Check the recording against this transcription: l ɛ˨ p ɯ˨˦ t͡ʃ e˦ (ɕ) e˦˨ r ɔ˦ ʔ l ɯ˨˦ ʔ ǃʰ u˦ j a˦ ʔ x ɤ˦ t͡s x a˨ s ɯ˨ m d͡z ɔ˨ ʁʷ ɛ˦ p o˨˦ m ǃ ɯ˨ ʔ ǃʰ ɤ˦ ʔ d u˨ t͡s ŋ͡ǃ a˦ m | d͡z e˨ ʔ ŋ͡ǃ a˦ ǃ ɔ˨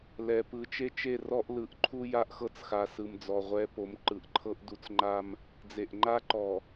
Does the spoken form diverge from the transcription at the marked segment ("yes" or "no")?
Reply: yes